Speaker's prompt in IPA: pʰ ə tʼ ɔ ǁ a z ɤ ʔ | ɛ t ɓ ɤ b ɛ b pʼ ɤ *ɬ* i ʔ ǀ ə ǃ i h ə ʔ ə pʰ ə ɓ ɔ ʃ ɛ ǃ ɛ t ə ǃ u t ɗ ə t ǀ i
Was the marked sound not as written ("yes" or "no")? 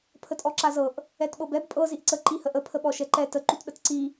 yes